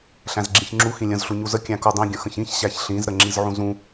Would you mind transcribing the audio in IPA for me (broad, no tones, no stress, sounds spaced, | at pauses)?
ɬ æ̃ z ɡ͡ǁ ĩ ç ŋ͡ǁ u x ĩ lʲ ə̃ z ɬ u ɲ u z ə kʲ æ̃ k u dˤ ĩ ɡʲ ə̃ x ə̃ ç ĩ ç ɕ æ ç ɬ ĩ z ɾ ə ŋ͡ǁ i z ʕ ũ z ũ